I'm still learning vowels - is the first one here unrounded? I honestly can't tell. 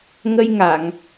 yes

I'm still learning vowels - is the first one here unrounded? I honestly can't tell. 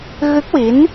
yes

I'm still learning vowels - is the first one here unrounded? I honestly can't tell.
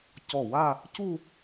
no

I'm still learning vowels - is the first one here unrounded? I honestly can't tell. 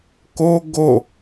no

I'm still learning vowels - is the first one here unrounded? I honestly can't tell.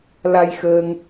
yes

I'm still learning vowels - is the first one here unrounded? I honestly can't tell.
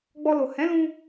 no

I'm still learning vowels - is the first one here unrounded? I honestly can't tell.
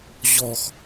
no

